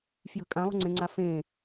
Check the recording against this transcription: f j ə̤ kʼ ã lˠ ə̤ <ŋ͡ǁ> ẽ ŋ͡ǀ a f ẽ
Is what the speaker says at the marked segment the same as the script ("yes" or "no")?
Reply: no